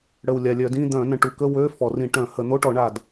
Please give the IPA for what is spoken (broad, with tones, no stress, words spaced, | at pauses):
ɽə˨˩wlʲa˨˩lʲœ˧˩˧dĩ˧˥˧ d̪œ̃˧˩˧nə̃˨˩ʈu˧˩˧kə˧˥˧ wø˧˥˧ fɔ˧˩˧ rĩ˧˩˧ ʈœ̃˧˩˧ hə˧˩˧ n̪o˧˥˧ʈɔ˧˩˧ɳa˨˩d